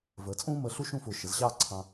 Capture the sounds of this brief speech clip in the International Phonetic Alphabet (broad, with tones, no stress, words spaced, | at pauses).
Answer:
vəː˩˧t͡sʼũː˥ məː˧ɬu˥ʃũ˥˧fʊː˧˩ ʃə˩˧zɕɑː˥˧ǀʰɑ̃˧